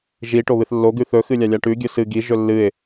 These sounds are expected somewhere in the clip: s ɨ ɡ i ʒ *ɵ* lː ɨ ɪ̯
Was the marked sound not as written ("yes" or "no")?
no